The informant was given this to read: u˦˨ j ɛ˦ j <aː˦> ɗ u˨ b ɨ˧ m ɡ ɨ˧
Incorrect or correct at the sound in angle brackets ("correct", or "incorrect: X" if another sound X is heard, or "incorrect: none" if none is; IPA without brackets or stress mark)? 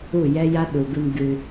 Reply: incorrect: a˦